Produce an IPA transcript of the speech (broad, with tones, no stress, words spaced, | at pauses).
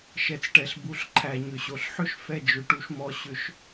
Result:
ʃɛ˩˥t͡sʈɛ˩ɬ bu˩˥ɬǃʰæ˩ ɲʏ˩ɕo˩ɬħʏ˥ʃ fɛ˥˩d͡ʒʏ˩˥ʈu˩˥ʃmɔ˧ ɕʏ˩˥ʃ